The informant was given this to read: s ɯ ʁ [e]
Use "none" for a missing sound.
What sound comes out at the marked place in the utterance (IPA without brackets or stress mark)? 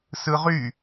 y